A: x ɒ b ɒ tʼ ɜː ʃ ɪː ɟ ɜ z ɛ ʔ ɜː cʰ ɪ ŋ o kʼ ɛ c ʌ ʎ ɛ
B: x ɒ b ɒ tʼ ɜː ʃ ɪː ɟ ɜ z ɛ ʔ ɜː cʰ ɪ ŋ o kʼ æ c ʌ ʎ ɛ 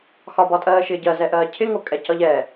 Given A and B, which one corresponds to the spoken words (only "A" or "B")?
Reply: A